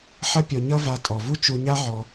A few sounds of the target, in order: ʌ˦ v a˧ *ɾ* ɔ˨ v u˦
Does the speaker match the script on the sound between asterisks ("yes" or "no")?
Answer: no